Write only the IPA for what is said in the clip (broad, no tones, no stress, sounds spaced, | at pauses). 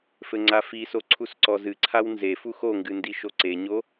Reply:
f ɘ ŋ͡ǀ a f i s o ǀʰ u s ǀ ɔ z ɨ ǀʰ a w n z e f u x o ŋ ɡ ɨ n d i ʃ o ǀ e ɲ o